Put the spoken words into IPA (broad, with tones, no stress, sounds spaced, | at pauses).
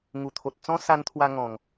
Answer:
ŋ u˨˩ t̪ʰ o˨ t̚ t͡s ɔ̃˦ s a˧ n t̪ʰ w a˧ ŋ ɔ̃˨˩ ŋ